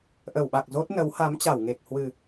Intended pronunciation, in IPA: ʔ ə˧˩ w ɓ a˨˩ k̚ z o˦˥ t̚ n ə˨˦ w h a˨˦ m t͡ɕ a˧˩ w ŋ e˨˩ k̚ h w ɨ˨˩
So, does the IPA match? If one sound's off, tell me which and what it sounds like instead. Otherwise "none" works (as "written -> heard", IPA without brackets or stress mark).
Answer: none